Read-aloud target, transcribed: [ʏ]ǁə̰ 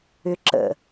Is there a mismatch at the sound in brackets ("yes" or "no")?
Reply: no